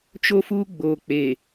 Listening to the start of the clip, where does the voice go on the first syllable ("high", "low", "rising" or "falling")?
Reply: high